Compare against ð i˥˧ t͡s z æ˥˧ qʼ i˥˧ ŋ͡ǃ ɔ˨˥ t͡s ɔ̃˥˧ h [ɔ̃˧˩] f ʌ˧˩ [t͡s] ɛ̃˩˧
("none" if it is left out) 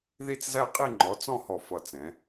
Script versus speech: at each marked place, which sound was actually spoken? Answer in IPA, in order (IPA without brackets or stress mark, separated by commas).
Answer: ɔ˧˩, t͡s